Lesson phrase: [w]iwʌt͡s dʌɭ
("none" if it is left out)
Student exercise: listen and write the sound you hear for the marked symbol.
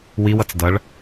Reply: w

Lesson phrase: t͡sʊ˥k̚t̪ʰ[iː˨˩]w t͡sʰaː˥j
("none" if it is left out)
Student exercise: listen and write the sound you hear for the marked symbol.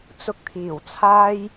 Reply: iː˨˩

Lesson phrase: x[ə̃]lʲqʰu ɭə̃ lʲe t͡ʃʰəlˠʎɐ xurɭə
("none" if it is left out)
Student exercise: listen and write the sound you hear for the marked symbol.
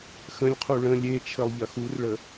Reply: ə̃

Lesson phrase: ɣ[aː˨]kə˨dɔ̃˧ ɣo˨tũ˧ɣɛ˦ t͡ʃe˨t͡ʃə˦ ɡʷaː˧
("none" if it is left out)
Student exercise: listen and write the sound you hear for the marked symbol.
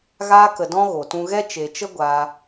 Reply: aː˧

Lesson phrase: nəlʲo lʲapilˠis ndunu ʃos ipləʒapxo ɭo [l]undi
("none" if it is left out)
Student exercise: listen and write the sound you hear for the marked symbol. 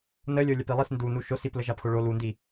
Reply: l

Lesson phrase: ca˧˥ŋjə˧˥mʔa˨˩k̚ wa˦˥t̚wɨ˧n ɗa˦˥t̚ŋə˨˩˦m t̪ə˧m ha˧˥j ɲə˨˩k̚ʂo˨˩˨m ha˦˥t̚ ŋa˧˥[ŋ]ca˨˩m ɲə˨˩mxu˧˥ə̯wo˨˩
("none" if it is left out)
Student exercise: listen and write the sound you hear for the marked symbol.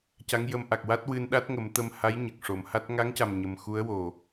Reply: ŋ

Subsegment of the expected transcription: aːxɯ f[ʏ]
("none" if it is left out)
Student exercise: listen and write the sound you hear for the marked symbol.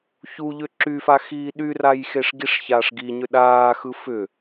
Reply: ʏ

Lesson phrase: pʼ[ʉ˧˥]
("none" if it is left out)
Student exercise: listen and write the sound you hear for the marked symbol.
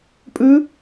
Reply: ʉ˧˥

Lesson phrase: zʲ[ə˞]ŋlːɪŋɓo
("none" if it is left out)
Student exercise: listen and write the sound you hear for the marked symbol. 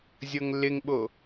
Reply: ɤ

